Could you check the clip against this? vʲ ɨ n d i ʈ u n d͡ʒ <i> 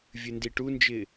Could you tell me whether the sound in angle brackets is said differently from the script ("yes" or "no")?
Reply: yes